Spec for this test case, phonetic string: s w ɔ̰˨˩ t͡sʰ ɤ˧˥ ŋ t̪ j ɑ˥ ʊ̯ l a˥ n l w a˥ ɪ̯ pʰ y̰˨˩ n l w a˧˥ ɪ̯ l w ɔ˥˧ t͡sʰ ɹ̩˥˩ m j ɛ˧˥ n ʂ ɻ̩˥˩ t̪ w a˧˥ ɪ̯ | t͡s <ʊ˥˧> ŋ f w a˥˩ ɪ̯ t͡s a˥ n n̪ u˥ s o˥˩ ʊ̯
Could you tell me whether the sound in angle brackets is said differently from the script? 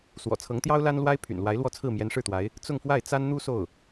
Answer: no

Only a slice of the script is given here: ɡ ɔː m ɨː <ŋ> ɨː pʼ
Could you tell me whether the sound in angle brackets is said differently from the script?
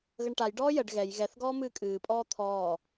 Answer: yes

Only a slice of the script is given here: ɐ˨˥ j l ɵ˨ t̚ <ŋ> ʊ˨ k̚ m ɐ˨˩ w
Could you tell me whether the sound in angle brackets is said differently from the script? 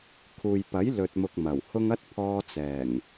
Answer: yes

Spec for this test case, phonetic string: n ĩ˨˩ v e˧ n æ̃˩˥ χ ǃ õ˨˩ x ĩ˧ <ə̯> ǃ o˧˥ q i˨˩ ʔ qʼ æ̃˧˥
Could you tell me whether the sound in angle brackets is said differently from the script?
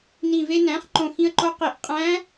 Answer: no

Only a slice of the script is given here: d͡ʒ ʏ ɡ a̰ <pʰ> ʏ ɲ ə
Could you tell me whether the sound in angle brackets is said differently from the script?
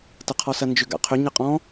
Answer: yes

